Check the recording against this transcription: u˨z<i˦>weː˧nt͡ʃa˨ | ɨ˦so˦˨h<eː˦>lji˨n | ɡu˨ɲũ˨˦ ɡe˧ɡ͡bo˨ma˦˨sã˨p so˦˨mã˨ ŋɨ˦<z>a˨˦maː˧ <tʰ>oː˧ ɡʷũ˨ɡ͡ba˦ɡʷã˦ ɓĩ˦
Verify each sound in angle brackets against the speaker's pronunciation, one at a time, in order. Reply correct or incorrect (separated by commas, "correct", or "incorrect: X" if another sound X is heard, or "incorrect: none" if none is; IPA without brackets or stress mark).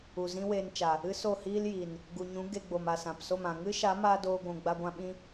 incorrect: ĩ˦, incorrect: iː˦, incorrect: ʃ, incorrect: d